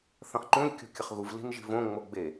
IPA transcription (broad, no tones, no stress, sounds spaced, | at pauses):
θ ɐ̃ χ ǃ ũ lʲ kʲ o̤ kʲ ɐ χ ɣ u v l i̤ n ʒ i̤ v õ ŋ͡m o ɡ͡b e